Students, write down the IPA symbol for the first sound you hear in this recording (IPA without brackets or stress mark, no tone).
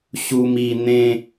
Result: ɕ